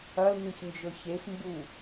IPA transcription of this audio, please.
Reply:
ɐ l n ʉ ç n d͡ʒ ɵ ç e x m b u

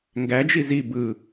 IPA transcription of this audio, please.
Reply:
ŋ ɡ æ d͡ʒ i z i b ɯ

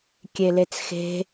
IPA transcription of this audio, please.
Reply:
kʲ e l e t͡s x e̤

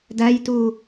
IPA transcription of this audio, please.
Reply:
d æ j t u

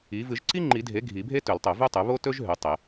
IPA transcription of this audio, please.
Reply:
i˩˥ v ɨ˨˩˦ ʒ ǀ i˥ ŋ͡ǃ i˨˩˦ dʱ e˩˥ ɡʱ i˨˩˦ bʱ e˥ t ɵ˨˩˦ l tˤ ɵ˨˩˦ v ʉ˥ tˤ ʉ˩˥ β o˥ t ɵ˥ ʒ ɦ ʉ˩˥ tˤ e˨˩˦

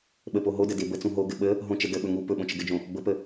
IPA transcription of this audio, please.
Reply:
ɓ ə p o ɦ o d ə d e b ə t͡s ũ ɦ o ɡ ɘ ɓ ə | ɦ õ t͡ʃ ə d ə ɓ ɵ ŋ u p ɵ ɓ õ t͡ʃ ə ɡ ɘ d͡ʒ õ | b ə p ə

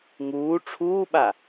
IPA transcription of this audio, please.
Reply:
ŋ uː ʈ͡ʂʰ uː ɓ a

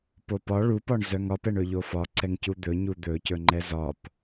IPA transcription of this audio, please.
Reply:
p o p ɒ ɭ u p ɒ ɳ z œ ŋ ɒ p ɛ ɳ ɵ ʎ o f ɒ ǀ ɛ ŋ c u d̪ ɵ ɲ u d̪ ɵ c ɵ ŋ͡ǃ ɛ z ɒ p

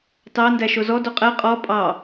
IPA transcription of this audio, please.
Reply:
t ɑ n d æ ʃ o z ɔ d o qʼ ɛ qʼ ɔ pʼ ɑ

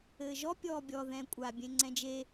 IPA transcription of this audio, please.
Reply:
ɘː ʒ ɔ pʲ ɔː bʲ ɔ ð ɛ̃ kʷʼ a bʲ ẽ ŋ͡ǀ ɛ̃ d͡ʒ e

